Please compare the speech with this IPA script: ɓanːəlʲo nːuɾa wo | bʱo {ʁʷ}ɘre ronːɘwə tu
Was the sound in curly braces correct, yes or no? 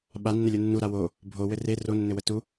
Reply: no